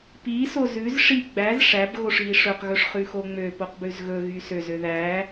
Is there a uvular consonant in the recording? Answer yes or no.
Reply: yes